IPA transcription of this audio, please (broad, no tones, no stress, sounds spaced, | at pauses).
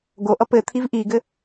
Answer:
ɡ o ʔ ʌ p ɘ t̪ʰ i v ʔ i ɡ ɘ